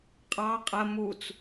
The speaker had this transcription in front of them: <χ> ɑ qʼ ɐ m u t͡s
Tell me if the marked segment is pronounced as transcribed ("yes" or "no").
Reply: no